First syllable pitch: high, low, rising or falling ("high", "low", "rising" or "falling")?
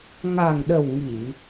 low